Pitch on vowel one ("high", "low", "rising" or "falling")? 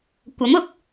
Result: rising